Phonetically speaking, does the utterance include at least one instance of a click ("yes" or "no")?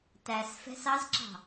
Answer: yes